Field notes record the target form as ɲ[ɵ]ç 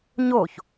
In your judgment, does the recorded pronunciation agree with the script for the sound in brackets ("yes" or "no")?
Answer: no